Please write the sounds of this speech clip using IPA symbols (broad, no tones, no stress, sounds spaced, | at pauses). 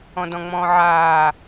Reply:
ɔ̃ d ɔ̃ ŋ͡m ɔ̃ː ʕ aː